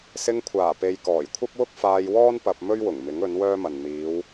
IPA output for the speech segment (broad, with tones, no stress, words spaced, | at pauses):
sɪ˧ŋkʷʰaː˨˩pe˨j kɔː˨˩jkʷʰɐ˥p̚wʊ˥k̚ faː˧jwɔː˥n pɐ˧p̚ mɵ˥ɥwʊ˨˩ŋmɪ˨˥ŋ ɵ˨˥nwœː˥mɐ˨n n̪iː˨˧w